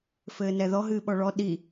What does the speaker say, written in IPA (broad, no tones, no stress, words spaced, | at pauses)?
fɘːnɛðɔ ɦɨːɓɔɭɔ ɗi